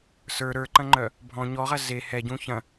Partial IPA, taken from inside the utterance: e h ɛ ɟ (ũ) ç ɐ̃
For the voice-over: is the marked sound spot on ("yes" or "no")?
yes